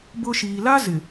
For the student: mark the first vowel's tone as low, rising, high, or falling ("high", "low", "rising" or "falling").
high